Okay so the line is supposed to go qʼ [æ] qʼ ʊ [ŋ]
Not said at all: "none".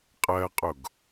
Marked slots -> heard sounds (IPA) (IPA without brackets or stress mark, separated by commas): ɜ, ɡ